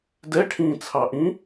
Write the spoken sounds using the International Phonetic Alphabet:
d ɛ ʈʰ ĩː t͡sʰ ɑ ʔ ĩ

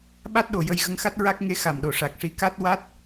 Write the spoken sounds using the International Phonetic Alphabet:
ɓ a˦˥ t̚ ɗ o˨˩˨ j ə˧ j ɣ ə˧ ŋ x a˦˥ t̚ ɹ a˦˥ k̚ ŋ e˧˥ x a˨˩ m ɗ o˨˩ ʂ a˨˩ k̚ ʂ i˧ k a˦˥ t̚ w a˦˥ t̚

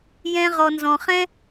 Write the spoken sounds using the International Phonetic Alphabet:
j ɛ̃˧ ʁ ɔ˨ n z ɔ̃˨ χ ɛ̃˦

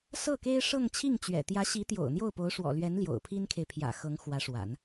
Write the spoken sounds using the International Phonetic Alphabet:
s ɤ˥˩ k e˥ ɪ̯ ʂ ɤ˥˧ ŋ t͡ɕʰ i˥˩ ŋ t͡ɕ ɥ ɛ̰˨˩ t̪ j ä˧˥ ɕ i˧˥ t̪ j o̰˨˩ ʊ̯ n̪ j o˥˩ ʊ̯ p o˧˥ ʊ̯ ʂ w ɔ̰˨˩ l ɥ ɛ˧˥ n l j o̰˨˩ ʊ̯ pʰ i˥ n kʰ e˨ ɪ̯ pʰ j ä̰˨˩ x ɤ˧˥ ŋ x w ä˧˥ ʂ w a̰˨˩˦ n

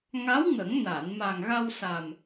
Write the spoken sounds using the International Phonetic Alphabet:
ŋ a˧˥ w ŋ ə˨˩˦ ŋ n a˨˩˨ n m a˨˩ ŋ ɣ a˧ w s a˨˩ m

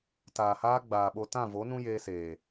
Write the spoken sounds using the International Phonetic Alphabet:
t aː˨ h aː˦ ɡ͡b aː˨ ɓ o˧ t ã˦˨ v o˨˦ n ũ˦ j eː˧ s eː˨

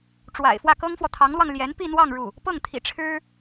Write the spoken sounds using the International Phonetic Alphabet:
ʈ͡ʂ w a̰˨˩ ɪ̯ f w ä˥˩ k ɤ˥ ŋ f w ɔ˨ t̪ʰ ɑ˧˥ ŋ l w ɑ˧ ŋ l j ɛ˧˥ n p i˥˧ n̪ w ɑ˥˧ ŋ ɻ u˥˩ | p ɤ˥˩ ŋ t̪ʰ ḭ˨˩ ʈ͡ʂʰ ɻ̩˥

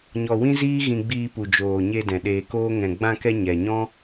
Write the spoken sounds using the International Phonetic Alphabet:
ɲ ɔ˧ w ĩ˦ z iː˦ ɣ ĩ˧ ɡ͡b iː˧ p u˨ d͡ʒ oː˨ ɲ e˧ d ɛ̃˨ ɗ eː˧ k oː˦ ŋ ɛ̃˨ ɡ͡b ã˧ k ɛ˧ ɲ ɛ˨ ɲ ɔ̃˦

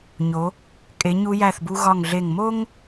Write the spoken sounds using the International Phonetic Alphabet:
ɲ o˩˧ | kʼ e˩˧ ɲ u˧ j æ˧˩ θ b u˧ ɣ ɒ˧˩ ŋ ɮ e˧˩ ŋ m o˥ ŋ

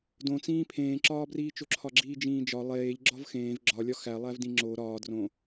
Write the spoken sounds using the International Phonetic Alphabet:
d õ t͡s ĩː pʰ ẽː ǁ ɒː b r iː t͡ʃ o ǁʰ ɒ ɡ͡ǁ iː d͡ʒ ĩː d͡ʒ ɒ lˠ eː ʎ ɡ͡ǁ ɒ v x ẽː v ɡ͡ǁ ɒ lʲ ɒ x æ lˠ æ v d ĩ ŋ͡ǁ o ɾ ɒː d r õ

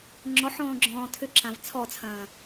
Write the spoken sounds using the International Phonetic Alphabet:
ŋ͡ǁ ɔ ħ ɔ̃ː ɡ͡ǁ ɔ̃ː tʰ ʏ ǁ ã v t͡sʰ ɔ t͡sʰ ɐ̃ː

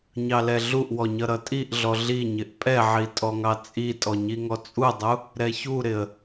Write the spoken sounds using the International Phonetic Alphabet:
ɲ ɑ l ɛ ɮ u ʔ w ɔ ɲ ʌ ɾ ʌ tʼ i ʔ ɮ ɔ ɮ i ɲ ɪ ʔ pʼ ɛ ʕ i tʼ ɔ ŋ ɑ t͡sʼ i tʼ ɔ ɲ i ŋ ɔ t͡sʼ u dˤ u | ɾ ɛ ç u ɾ ɪ ə̯

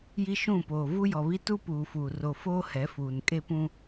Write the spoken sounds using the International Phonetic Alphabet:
j i˦ ʃ ũ˦˨ p oː˨ v u˦ j ɔ˨ β i˦ t u˦ p uː˨ f uː˨ r o˨ f oː˦ h ɛ˨˦ f uː˨ n kʼ e˦ p ũ˦

